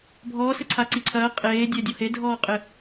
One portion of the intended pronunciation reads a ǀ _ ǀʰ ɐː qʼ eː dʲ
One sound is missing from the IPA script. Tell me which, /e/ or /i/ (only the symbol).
i